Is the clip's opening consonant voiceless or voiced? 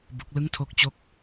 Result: voiced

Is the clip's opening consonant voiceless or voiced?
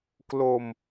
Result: voiceless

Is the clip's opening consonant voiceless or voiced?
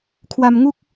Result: voiceless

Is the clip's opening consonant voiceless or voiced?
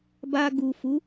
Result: voiced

